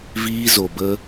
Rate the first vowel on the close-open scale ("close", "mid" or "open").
close